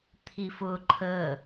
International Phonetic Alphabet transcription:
t̪ʰ i f ʊ ǃʰ ə

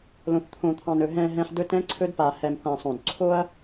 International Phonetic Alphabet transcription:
l õ˨ θ t̪ʰ õ˨ t̪ʰ ɑ̃˨ n ɵ˨ ɦ ɛ̃˨ ɦ ɛ̃˨ ħ d ɵ˦ t ɛ̃˦ ǀʰ ɵ˦ d p a˨ h ɛ˨ m θ ã˨ sˤ õ˨ d ǀʰ o˦ ɐ̯

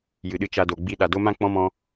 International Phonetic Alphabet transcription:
j ɨ˨ ɗ ɨ˧ t͡ʃ a˧ d o˨ ɡ͡b i˦ ɗ a˨ d o˦ m ã˦ k͡p ɔ̃˦ m ɔ̃˧

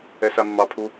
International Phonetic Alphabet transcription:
ɛ s a mː ɑ pʰ u

